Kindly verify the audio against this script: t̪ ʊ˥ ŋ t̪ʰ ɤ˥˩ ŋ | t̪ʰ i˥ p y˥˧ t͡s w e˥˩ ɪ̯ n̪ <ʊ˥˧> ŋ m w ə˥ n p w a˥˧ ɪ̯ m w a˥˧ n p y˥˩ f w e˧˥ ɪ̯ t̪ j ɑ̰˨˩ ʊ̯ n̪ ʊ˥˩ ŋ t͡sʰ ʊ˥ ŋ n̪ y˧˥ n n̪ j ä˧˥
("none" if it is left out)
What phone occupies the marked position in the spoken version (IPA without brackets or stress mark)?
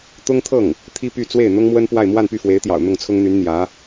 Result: ʊ˥